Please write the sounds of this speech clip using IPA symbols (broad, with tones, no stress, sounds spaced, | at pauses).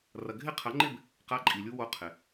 r ɐ˨ ɡʱ ɪ˦˥ qʰ ɐ˨˥ ŋ͡ǃ ɪ˥˧ b | q a˦˥ ǃʼ i˨ lʲ u˦˥ w o˦˥ qʰ ɪ˨